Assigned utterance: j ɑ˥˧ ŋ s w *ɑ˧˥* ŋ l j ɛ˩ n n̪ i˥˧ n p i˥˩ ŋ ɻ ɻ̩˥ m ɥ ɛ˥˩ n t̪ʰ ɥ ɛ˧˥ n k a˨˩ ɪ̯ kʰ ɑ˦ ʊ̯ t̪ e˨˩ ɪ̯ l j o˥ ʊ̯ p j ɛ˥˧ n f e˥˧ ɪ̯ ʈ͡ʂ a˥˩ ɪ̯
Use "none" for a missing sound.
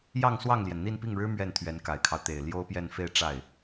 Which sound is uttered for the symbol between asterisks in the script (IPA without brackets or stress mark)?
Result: ɑ˥˩